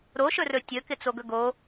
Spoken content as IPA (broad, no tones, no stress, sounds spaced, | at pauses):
ɾ o ʃ ɵ r ɵ tʲ ɵ k ɪ t͡s o ɡ ɵ ɡ o